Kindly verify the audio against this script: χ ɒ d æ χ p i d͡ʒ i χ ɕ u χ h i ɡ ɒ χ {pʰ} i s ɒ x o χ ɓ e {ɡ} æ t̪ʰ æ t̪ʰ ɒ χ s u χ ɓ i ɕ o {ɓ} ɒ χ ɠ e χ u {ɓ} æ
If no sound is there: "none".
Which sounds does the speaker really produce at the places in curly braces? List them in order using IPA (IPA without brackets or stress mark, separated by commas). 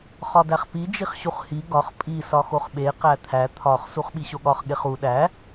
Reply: pʼ, q, ɠ, ɗ